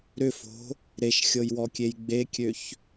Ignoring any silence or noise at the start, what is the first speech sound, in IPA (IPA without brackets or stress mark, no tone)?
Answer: ɾ